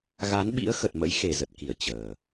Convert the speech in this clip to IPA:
ɣa˨˦nɓḭ˧˥ə̯ xə˨˩t̚mə̰˧˥jxe˨˩ zə˨˩t̚ki˧˩ə̯ t͡ɕəː˨˩

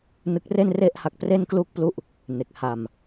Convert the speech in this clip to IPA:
nɯ˦˥k̚re˥˩nre˥˩ʔha˦˥k̚ pre˥˩nklu˥˩k̚plu˥˩ʔ | ne˨˩k̚ ha˧m

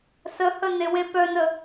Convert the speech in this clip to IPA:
səhə newepœnə

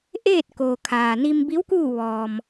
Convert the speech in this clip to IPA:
ʔeː˥˨t̚koː˩ kʰaː˩ni˧mbi˧˥w kuː˥˨ ʋɔː˩m

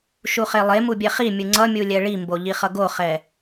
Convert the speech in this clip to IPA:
ʃuχelˠemu bʲɛχimʲɯ ŋ͡ǀʌ mʲulʲɛɭimbo ʎiχʌɡoχɛ

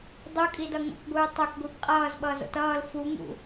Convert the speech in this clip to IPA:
dˤukʼidʌ ŋo̰kɡʷɯː tˤokɡʷib qʼʌːzɓʌːzo̰t ʌːl fuŋṵ

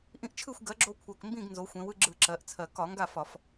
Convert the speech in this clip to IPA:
ʔĩ˦ʔt͡ʃʰɯ˥˨xʷ ɡɜ˩˥ɡ͡ǁo˦ kʷʰɜ˨˩kmbĩ˥˨ɡ nzo˩˧xʷẽ˩˧wɯ˦ ɡ͡ǁɯ˧˩˧ ǁɜ˩˧ʔt͡sʰɜ˨˩ kɒ˧˩˧ ŋɡa˥˨fɒ˧˩˧f

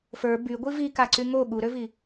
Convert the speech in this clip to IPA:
fə˞ byɡʷi vikaǀy ŋo ɠuɾøvi

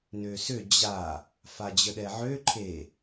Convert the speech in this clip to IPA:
nøsø d͡ʑa | fad͡ʑəɗɛʕø ǃʰe

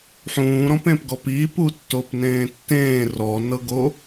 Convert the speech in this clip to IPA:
ħũːɾɔ̃pẽpɡɔp i putːopnẽːtːẽː rɔnɤɡo

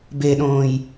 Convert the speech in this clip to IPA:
beɗõːj

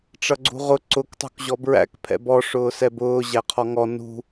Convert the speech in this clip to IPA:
ʈ͡ʂʌɡ͡ǀṳʁʊ ǀʊk tˤṳkʑɔbɹæ̰k pʰɛ̰bɔ ʂʊːsɛbʊː ʑæqʰɔŋɔ nṳ

